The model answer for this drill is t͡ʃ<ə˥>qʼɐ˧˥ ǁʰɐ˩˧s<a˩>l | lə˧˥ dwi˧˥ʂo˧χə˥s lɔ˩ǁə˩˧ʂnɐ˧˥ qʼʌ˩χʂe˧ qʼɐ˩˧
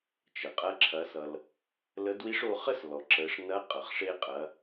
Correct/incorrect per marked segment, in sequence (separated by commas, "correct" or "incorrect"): incorrect, incorrect